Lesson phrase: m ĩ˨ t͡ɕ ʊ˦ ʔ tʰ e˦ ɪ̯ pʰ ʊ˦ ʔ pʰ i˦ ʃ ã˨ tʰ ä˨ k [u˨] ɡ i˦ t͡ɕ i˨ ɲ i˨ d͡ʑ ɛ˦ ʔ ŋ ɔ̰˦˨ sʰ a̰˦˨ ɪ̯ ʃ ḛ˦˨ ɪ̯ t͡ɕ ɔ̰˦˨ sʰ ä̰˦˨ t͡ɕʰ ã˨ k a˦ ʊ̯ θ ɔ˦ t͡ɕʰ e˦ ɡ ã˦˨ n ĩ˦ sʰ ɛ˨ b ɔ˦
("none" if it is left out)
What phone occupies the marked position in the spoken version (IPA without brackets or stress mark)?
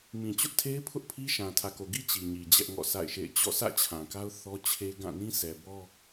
o˨